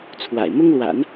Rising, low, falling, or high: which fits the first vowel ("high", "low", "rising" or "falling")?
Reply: low